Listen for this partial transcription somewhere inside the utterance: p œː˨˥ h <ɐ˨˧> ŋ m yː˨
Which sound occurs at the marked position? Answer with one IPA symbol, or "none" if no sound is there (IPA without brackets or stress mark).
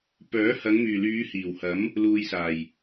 ɐ˨˧